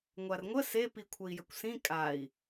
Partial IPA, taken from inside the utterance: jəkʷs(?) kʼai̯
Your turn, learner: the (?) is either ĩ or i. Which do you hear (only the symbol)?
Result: ĩ